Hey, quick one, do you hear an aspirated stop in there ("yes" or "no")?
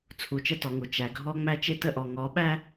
yes